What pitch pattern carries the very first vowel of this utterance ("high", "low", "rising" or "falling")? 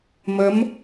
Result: rising